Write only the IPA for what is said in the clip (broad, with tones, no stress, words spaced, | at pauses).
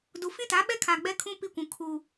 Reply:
du˨ fĩ˦ta˨˦ɓɛ˦kʰaː˨ ɡ͡bɛ˦kʰũ˦ pi˦kʷũ˨ kʰuː˨